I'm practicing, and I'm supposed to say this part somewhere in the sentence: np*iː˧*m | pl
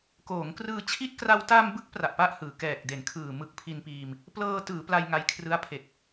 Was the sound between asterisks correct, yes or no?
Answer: yes